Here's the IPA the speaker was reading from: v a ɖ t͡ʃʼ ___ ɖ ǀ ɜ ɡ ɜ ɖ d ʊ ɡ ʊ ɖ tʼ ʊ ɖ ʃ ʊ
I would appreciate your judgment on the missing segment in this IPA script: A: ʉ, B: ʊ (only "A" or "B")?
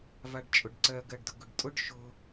B